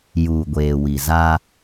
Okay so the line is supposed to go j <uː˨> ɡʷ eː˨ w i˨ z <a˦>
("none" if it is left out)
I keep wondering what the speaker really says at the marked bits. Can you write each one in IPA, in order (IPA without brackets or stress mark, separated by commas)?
uː˨, a˦